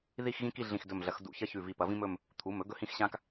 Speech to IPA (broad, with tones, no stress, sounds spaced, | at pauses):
ð i˥˧ x ɣ ĩ˥ k i˥˧ ɮ ĩ˧˩ x d ɵ˧˩ m ɮ ɐ˨˦ x d ṵ˧˩ ç ɐ˥ ç ʉ˧˩ v i˧˩ p ɐ˨˦ v ĩ˥ m ɵ˥˧ m | t̪ʰ u˩˧˩ m ɵ˥ ɡ ɵ˥ h ĩ˥˧ x ɕ ã˥ k